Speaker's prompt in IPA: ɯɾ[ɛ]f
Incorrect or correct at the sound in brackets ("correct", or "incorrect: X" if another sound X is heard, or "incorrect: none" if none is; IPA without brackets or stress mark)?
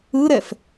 correct